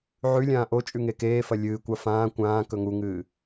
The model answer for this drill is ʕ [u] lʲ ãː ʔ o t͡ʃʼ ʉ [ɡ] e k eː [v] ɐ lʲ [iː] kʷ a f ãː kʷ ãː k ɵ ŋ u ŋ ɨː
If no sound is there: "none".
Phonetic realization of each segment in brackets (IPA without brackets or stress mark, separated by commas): ʉ, ŋ, f, ɨː